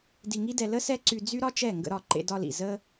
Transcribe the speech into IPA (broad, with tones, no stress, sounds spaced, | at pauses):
d i˧ ŋ i˦ d ɛ˧ l ə˦ s ɛ˦ ǀ y˧ d͡z y˦ ɾ ɒ˦ t͡ʃ ɛ˦˨ ŋ ɡ ə̰˧ ɾ ɒ˦˨ ǃ ḛ˧ d ɒ˧ l ḭ˨ z ə˦